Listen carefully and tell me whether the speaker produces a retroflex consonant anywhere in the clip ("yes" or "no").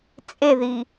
no